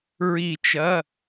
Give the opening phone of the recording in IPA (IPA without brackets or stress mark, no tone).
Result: ɹ